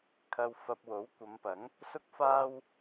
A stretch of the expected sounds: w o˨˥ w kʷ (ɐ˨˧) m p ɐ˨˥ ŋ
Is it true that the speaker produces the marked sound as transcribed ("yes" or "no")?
yes